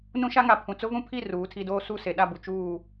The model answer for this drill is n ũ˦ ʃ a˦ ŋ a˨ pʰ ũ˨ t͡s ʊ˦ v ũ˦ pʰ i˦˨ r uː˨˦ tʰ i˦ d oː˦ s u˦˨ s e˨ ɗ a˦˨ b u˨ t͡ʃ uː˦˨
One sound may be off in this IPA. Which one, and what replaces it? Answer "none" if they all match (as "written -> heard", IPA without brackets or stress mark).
none